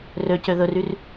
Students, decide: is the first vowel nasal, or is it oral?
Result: oral